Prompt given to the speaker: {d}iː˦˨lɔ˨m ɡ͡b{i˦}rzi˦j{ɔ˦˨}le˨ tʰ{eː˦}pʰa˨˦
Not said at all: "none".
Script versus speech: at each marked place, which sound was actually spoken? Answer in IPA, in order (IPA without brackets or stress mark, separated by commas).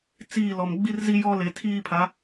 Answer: t͡s, i˦, ɔ˦, iː˦